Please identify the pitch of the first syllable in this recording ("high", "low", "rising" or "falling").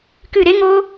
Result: falling